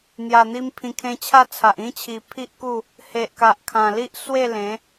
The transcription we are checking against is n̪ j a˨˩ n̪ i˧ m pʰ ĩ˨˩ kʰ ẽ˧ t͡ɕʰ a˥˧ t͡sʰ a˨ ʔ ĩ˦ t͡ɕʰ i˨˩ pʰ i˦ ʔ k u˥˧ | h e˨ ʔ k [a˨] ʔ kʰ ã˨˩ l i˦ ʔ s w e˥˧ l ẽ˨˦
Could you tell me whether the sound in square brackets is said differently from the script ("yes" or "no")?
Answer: no